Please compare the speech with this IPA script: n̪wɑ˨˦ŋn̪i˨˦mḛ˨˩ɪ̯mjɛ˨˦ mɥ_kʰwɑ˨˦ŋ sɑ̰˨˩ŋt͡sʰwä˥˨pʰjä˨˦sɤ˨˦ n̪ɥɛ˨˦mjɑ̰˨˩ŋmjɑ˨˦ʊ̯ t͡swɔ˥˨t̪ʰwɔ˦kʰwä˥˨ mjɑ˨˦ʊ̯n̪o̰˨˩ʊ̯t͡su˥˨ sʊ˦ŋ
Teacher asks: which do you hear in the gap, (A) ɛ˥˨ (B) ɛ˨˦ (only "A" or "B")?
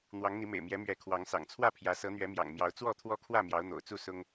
B